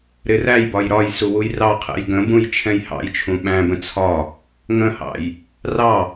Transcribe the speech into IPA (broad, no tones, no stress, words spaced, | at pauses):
ɾɪræjbɒj ɾɒj suwujrɑqʰɛ̰j ɡə̃bũj t͡ʃʰɛ̃jhɑ̰jt͡ʃʰũ ɓæ̃bə̃ t͡sʰɒ | ŋə̃hɑ̰j | rɑ